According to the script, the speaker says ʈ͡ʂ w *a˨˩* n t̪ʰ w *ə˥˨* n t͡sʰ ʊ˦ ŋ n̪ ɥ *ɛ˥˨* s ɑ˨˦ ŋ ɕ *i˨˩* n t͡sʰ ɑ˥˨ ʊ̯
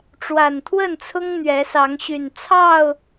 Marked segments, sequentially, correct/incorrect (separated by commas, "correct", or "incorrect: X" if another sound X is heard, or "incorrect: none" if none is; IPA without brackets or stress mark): correct, correct, incorrect: ɛ˨˦, incorrect: y˨˩